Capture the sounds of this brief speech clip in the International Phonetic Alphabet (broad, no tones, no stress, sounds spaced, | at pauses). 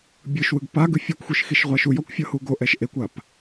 bʲ ɯ ʃ w ɯ ɡ p a ɡ ɯ fʲ ɔ kʷ xʷ i ʃ x i ʃ ʁʷ a ʃ u j ɔ kʷ fʲ ɤ h u ɡ o ʔ ɛ ʃ ʔ e kʷ a p